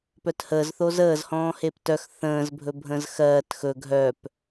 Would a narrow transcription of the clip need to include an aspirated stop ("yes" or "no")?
no